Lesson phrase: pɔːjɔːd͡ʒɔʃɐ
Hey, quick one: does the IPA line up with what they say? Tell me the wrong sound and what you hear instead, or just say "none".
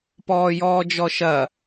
none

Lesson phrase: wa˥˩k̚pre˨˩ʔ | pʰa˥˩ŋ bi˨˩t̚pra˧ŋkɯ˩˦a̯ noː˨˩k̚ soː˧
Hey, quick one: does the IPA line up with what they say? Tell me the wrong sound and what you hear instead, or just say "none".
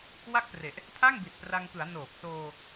none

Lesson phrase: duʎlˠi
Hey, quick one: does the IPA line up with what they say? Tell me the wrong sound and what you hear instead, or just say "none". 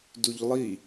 none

